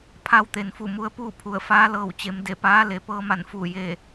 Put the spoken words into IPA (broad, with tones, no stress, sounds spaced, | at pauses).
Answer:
pʰ a˧˥ w t̪ e˩ n f u˧˩ m u˧ ə̯ p uː˥˨ pʰ u˧˩ ə̯ f aː˧˥ l ɤː˧˩ w t͡ɕ e˩˧ m d e˧˩ p aː˧˥ l e˩˧ p ɤː˧ m a˧˩ n f u˧˩ j e˧˩